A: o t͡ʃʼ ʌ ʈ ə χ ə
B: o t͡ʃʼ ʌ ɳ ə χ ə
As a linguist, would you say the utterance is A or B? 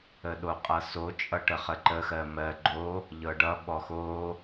A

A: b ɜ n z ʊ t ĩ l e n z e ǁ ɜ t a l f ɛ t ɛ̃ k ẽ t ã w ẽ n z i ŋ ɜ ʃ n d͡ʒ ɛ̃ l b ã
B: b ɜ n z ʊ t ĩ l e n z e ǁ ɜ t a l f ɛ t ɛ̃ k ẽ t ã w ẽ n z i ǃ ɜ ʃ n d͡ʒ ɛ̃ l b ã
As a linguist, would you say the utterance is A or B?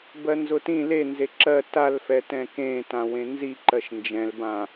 B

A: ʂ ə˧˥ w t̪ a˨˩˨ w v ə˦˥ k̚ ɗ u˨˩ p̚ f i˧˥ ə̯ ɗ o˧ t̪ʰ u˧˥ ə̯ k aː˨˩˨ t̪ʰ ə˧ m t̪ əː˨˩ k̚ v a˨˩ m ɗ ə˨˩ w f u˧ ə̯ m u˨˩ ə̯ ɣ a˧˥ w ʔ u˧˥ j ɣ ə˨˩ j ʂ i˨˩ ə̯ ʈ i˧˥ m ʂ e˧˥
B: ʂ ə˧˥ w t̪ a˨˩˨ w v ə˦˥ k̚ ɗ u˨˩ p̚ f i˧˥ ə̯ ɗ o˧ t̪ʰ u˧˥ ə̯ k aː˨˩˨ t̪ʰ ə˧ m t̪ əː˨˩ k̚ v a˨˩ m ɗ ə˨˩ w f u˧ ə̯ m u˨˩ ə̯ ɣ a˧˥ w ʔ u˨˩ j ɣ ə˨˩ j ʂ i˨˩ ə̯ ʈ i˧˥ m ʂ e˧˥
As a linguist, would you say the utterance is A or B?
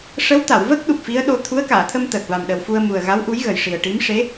A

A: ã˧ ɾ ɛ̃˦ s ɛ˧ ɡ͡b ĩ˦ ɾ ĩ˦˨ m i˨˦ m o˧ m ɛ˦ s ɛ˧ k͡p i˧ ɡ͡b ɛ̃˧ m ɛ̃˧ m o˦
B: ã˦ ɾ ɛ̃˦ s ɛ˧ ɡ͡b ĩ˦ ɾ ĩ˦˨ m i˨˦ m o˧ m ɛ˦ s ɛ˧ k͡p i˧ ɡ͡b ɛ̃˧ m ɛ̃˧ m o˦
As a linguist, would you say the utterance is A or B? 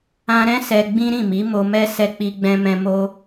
A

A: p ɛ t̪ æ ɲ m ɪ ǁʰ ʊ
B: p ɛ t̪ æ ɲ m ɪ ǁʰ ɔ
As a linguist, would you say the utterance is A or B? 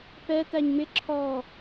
B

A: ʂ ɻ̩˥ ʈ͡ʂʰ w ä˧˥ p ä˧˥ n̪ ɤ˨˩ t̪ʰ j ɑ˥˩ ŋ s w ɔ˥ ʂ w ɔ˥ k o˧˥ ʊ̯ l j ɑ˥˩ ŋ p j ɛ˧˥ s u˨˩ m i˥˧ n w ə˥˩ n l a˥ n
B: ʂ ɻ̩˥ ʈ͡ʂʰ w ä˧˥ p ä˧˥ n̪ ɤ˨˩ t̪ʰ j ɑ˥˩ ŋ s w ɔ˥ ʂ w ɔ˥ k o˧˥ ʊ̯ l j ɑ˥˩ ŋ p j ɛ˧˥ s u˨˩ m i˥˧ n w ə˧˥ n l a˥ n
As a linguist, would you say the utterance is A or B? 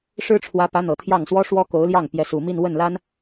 A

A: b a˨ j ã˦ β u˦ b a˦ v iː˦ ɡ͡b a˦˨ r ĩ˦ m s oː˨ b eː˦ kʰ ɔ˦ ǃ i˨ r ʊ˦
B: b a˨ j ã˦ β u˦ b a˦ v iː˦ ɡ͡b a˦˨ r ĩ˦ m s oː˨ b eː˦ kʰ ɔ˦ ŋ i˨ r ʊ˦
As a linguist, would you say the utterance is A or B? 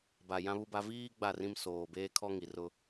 B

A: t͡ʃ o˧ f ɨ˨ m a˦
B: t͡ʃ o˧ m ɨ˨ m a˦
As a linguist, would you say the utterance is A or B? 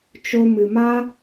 B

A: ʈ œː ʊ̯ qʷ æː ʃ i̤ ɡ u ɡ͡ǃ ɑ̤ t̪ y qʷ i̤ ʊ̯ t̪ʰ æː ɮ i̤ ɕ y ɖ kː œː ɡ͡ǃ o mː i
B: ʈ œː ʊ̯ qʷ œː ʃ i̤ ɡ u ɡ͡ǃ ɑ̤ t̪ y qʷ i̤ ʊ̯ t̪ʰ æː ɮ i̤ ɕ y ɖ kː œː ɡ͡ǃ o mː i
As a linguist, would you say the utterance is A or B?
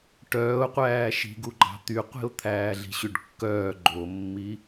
A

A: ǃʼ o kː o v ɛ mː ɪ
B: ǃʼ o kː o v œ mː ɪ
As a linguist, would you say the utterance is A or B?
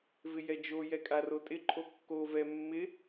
A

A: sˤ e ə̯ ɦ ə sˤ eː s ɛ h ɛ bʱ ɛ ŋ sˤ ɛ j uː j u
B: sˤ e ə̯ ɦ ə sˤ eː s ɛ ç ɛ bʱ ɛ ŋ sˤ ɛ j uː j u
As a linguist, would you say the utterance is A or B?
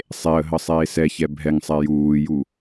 B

